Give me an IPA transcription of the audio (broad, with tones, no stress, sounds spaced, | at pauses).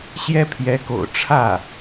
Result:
ɕ j ɛ˥ pʰ j ɛ˧˥ k o̰˨˩ ʊ̯ ʈ͡ʂʰ ä˥˩